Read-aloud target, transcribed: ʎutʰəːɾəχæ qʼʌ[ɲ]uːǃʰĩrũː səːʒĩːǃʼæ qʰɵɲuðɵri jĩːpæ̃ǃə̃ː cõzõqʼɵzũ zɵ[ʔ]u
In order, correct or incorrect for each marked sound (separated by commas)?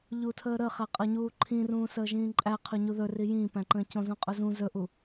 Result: correct, correct